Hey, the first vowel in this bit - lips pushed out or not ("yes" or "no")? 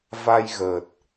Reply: no